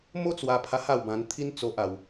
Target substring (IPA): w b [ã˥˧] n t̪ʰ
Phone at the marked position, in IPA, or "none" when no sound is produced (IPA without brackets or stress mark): ã˧